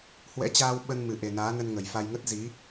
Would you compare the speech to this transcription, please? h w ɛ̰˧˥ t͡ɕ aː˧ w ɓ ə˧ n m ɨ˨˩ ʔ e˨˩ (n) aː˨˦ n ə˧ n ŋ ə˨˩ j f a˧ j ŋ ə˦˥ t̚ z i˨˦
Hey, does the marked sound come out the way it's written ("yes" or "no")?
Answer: yes